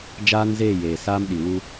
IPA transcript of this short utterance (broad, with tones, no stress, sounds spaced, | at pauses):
d͡ʒ aː˦ n z eː˦˨ j eː˨ s aː˦ m ɗ i˨ w u˦